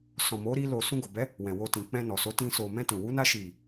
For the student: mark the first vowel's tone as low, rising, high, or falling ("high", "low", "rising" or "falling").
low